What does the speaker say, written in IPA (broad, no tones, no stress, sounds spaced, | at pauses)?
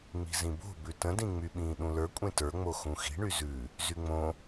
ŋ͡m i̤ z ĩ b o̤ b ʉ t ə̃ d ĩ ŋ͡m y ɓ ĩː ɗ ũ l ə˞ kʷʼ ẽ t ə˞ ŋ͡m o x ũ x i̤ ɳ y z ʉ | z y ŋ͡m õ